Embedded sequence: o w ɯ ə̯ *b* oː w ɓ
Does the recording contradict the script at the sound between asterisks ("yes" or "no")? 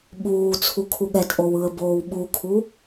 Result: no